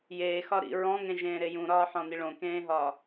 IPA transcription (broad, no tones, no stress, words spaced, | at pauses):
jeːxɒ ɾḭ ɹɔ̃ŋẽʒẽːɾe jũɾɒːħɔ̃ni ɭõkẽːɦɒː